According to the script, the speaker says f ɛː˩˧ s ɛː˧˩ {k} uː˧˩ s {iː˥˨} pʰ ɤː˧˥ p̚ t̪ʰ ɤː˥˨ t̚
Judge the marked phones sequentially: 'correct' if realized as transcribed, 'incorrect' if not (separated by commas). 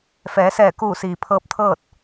correct, incorrect